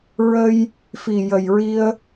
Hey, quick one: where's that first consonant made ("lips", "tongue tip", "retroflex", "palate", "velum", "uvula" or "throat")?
tongue tip